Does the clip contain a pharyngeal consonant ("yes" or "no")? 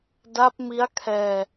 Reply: no